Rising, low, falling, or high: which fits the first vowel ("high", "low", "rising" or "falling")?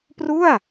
falling